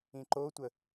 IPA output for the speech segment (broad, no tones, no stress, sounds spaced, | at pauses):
ĩ ǃ o tʷ ə